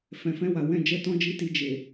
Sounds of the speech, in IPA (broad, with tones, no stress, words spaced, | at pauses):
fɛ̃˨fɛ̃˧ wa˨wɛ̃˧ d͡ʒɛ˦tɔ̃˦d͡ʒi˦ti˧ d͡ʒe˨